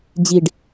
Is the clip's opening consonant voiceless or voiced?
voiced